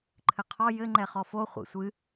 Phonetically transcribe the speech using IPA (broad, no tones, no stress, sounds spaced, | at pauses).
ǃʰ ɘ qʰ ɔ j ɘ ŋ͡ǃ ɛ χ ɔ f o χʷ ḭ sʷ ɨ